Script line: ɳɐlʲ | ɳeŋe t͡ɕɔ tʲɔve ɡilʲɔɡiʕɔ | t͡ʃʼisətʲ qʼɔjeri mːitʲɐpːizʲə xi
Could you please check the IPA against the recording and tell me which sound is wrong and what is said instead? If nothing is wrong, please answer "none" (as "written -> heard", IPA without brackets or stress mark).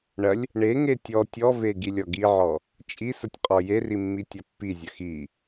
t͡ɕ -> tʲ